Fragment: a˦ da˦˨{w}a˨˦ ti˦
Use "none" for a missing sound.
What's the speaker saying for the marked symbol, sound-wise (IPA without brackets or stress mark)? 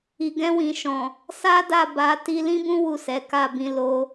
b